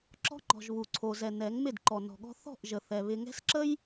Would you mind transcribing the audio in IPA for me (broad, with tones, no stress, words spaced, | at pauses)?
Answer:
ǁɔ̤˦ŋ͡ǃɔ̤˨ʒ βu˨ǀʰo˨zɛ˨ nɛ˨˦ŋmɪ˦˨d ǃɔ˨nɔ̤˨ɠɔ̤˦ θɔ̤˦˨ʔ ʒə˨θɛ˨ βɪ˨ŋɛ̤˦sǁə˦j